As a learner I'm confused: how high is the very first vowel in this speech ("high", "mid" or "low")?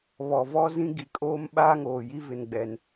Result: mid